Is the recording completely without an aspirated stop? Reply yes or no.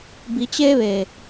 yes